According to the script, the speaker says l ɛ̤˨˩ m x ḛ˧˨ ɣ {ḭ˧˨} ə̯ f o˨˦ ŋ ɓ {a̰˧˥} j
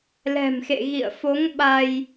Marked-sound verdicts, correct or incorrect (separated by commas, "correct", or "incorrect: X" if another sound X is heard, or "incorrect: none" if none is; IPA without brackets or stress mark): correct, incorrect: a˧